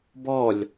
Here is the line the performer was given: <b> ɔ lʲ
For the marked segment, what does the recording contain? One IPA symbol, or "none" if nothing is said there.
b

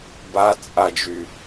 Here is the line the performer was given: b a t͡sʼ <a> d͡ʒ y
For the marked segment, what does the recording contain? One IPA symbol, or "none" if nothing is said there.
a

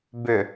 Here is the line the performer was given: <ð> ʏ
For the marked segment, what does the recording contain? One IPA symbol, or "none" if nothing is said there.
b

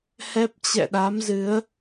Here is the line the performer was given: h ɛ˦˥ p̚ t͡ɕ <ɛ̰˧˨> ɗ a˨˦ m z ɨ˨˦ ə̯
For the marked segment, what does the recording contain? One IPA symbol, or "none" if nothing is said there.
ɛ̰˧˨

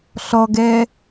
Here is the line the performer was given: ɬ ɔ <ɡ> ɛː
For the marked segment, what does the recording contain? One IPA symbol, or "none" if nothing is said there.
ɡ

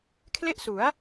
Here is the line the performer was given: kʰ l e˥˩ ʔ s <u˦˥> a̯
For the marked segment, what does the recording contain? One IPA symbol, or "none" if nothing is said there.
u˩˦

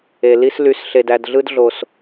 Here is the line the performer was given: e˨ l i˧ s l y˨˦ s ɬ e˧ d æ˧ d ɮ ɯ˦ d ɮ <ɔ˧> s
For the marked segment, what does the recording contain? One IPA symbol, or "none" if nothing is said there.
o˧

